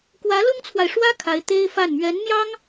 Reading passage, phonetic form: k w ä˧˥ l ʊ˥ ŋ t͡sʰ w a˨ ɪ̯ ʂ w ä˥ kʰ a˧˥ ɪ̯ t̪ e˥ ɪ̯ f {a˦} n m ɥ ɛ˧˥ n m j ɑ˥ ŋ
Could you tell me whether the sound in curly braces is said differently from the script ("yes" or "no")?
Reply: yes